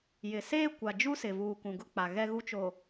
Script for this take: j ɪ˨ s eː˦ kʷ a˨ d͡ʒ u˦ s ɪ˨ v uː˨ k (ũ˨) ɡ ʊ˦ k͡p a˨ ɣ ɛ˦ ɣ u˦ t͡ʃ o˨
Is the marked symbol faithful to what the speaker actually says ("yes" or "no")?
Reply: yes